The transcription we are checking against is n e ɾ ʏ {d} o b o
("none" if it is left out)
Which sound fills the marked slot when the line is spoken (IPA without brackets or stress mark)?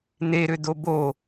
d